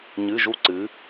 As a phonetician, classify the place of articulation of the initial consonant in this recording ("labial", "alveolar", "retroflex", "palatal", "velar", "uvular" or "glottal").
palatal